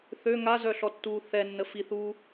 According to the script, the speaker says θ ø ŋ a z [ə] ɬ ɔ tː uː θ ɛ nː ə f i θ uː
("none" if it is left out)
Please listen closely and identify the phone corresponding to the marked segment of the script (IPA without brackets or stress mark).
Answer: œ